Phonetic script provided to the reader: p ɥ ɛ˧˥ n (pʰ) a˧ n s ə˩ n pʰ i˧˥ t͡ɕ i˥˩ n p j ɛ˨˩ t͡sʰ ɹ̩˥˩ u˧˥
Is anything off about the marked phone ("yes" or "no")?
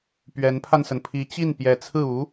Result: no